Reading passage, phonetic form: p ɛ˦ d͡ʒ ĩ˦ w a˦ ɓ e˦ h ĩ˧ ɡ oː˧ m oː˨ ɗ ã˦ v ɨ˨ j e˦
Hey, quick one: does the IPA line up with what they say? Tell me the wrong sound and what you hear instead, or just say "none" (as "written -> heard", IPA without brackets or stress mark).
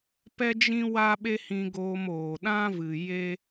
none